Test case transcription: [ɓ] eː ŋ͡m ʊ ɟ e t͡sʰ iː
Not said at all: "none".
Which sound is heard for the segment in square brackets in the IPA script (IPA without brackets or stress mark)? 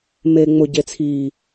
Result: m